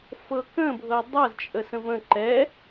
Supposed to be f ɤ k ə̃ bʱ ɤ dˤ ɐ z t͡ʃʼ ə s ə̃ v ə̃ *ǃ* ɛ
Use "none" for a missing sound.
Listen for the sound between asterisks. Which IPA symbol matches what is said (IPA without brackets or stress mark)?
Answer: ǃ